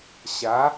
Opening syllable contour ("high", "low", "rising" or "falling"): rising